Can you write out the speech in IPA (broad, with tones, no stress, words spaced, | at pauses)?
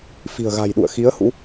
fi̤˨˩ə̯ɣa̤˨˩jɗṵ˧˨ə̯ xi˨˦ə̯hṵ˧˥